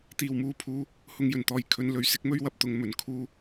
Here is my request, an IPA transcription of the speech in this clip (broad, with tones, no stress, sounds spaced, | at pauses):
t̪ iː˨˩ w m uː˧ pʰ uː˧ | h ʊ˧ ŋ j ɵ˨˩ n t̪ ɔː˨ j kʰ ɵ˧ n l ɵ˨ ɥ s ɪ˨˥ k̚ m ɵ˥ ɥ w ɐ˧ p̚ t̪ ʊ˨˧ ŋ m ɵ˨˩ n kʰ uː˧